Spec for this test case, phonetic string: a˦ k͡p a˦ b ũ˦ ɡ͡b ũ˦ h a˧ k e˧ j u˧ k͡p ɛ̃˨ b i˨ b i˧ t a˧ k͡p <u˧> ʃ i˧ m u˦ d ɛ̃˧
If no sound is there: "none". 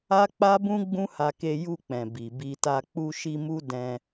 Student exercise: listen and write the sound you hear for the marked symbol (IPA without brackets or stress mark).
u˧